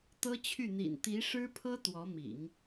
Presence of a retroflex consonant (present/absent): present